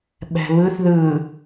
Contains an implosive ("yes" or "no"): yes